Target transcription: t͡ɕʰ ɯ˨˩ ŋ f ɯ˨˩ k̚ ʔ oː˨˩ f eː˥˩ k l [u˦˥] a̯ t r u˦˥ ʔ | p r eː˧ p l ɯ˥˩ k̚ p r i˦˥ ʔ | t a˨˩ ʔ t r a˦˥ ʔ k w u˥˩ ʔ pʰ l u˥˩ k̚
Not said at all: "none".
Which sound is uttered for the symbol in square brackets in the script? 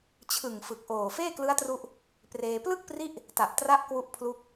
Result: ɯ˦˥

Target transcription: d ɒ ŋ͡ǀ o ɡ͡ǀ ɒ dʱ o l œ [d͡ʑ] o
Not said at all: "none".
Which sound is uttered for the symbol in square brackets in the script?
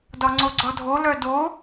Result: d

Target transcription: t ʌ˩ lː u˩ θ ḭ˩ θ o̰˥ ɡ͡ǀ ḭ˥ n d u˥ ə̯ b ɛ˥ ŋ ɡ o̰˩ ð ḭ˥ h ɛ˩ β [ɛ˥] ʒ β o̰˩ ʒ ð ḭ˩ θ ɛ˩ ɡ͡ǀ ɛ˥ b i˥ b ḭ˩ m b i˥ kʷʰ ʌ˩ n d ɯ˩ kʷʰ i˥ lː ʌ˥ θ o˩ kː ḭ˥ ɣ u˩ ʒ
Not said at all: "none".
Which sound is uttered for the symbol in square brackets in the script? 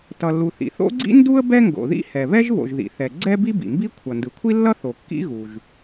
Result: ɛ˥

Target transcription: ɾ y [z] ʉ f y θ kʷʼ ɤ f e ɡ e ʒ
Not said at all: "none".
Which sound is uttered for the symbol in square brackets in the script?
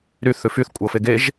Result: θ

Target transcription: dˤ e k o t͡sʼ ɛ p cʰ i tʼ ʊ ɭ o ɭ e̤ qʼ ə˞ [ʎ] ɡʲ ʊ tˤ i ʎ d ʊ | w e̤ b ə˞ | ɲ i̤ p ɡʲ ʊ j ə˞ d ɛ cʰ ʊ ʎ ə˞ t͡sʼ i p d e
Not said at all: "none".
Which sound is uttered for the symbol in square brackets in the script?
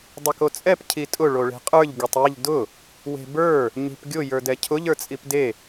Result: ʎ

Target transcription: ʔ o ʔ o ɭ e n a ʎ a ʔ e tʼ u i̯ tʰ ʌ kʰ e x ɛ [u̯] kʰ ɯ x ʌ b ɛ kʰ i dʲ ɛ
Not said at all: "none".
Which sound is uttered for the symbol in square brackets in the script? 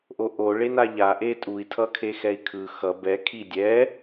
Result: i̯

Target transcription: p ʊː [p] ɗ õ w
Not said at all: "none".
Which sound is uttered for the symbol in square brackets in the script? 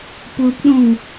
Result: p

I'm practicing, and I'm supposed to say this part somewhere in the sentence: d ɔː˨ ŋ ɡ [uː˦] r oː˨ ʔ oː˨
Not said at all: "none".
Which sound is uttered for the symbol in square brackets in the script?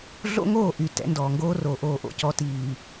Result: oː˦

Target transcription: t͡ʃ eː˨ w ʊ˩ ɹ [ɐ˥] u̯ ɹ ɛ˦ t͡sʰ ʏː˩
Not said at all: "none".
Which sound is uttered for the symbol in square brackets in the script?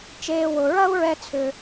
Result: ɐ˥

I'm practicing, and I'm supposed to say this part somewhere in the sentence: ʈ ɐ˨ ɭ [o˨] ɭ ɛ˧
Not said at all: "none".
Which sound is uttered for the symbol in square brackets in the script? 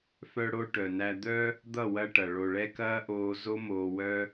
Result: o˨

